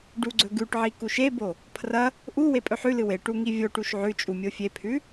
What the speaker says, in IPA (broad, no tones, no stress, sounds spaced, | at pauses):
ɖ u ɡ͡ǀ ɵ ɡ ʉ ʈ ʕ i k u ʃ e b o | pʰ r ɐ | ʔ u w e pʼ ɵ ħ ʉ l ɨ w e ʈ u ŋ i vʲ o ʈ u ʃ ʕ ʉ t͡ʃʼ u mʲ o fʲ e pʰ ʉ